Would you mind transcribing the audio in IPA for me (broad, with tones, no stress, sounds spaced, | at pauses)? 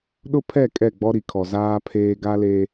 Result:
ɗ ʊ˦ pʰ ɛ˦˨ kʼ ɛ˦˨ ɡ͡b ɔ˦ ɾ i˨ kʰ ɔ˨ z aː˦ pʰ eː˦ ɡ a˦ l e˦